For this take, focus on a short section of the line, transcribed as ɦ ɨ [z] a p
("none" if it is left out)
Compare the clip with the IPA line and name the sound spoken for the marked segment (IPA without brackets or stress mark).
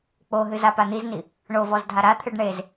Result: z